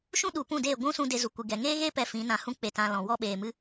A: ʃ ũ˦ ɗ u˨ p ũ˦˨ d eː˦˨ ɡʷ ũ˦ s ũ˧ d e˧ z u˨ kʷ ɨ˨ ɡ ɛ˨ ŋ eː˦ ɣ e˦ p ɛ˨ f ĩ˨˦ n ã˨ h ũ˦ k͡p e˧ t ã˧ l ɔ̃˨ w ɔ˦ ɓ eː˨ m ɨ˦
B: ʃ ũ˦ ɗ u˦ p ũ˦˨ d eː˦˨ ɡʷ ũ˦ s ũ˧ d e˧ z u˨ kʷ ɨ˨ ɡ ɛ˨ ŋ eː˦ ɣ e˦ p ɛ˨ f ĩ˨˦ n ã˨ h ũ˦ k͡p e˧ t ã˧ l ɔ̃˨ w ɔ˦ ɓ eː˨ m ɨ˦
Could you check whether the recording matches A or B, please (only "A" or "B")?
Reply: A